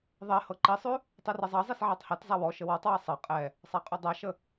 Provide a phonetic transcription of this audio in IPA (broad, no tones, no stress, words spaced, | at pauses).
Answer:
ðˤe hɤǃisˤʉ | tˤʉrezˤɑzˤes ʕɑtˤhɛtzˤa wɔ ʃəwɔtˤwɑ sˤɤ qʼɛ | sˤaqʼʉdˤaʃə